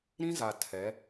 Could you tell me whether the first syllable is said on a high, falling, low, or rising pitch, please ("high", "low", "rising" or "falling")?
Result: high